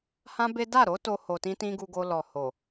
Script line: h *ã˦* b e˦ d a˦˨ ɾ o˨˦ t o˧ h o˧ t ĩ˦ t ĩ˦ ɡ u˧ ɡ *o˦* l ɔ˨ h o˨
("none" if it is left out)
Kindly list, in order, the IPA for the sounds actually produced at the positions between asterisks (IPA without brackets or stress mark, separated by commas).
ã˦, o˧